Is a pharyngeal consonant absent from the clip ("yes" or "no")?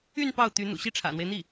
yes